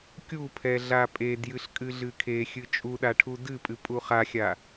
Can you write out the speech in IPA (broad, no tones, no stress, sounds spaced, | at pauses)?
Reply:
kʲ u pʰ ɛ ɮ a pʼ e d j ɨ ɬ kʼ ɨ ɮ ɨ kʰ e xʲ ɨ t͡ʃʼ u ɗ a ʈʰ u d ɨ pʼ ɨ pʼ u χ a xʲ a